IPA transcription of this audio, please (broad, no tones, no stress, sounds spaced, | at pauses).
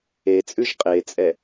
e t͡sʼ ʉ ʒ qʼ e t͡sʼ ɛ